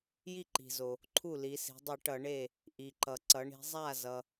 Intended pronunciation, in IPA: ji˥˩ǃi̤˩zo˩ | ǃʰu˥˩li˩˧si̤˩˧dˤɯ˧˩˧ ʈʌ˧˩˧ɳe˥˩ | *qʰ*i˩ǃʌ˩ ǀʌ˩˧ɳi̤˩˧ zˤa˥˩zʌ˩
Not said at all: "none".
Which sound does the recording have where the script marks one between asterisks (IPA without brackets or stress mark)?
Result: ʔ